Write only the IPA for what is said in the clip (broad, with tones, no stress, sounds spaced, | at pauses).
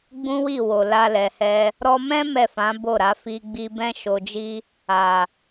ɡ͡b ũ˦ w i˦˨ w o˨ l a˧ l ɛ˨ h ɛ˧ | ɾ ɔ˧ m ɛ̃˦ m ɛ˦˨ f ã˨˦ b o˦˨ ɾ a˨˦ f i˧ ɡ͡b i˧ b ɛ̃˦ ʃ o˧ d͡ʒ i˦ | a˨